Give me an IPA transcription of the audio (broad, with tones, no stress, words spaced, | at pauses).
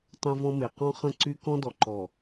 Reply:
tˤɛ̃˦vɔ̃˦me˨ qɔ̃˦ χə̃˦˨ǀy˦ kɔ̃˦dɔ˨ǃɔ˨